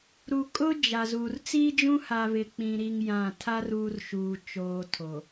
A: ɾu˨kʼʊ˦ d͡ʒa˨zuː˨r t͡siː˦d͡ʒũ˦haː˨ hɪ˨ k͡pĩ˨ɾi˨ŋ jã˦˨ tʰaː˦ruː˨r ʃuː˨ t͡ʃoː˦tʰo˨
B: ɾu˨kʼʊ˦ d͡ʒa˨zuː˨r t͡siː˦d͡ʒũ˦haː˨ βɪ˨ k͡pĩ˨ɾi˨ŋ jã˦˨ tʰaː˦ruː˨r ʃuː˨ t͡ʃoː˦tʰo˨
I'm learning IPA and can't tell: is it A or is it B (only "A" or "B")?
B